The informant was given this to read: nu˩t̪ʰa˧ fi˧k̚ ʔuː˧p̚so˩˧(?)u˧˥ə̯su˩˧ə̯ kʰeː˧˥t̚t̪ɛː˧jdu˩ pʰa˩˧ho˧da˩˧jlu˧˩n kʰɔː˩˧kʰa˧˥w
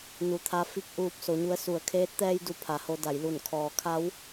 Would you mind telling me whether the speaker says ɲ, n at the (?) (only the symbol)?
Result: ɲ